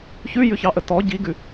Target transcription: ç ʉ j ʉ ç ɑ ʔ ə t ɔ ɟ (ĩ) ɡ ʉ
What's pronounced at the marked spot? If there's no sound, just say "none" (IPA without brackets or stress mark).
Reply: i